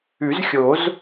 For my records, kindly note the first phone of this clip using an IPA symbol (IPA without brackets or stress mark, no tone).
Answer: ʉ